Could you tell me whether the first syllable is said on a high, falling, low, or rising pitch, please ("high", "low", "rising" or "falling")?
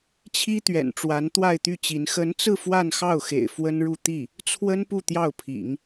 high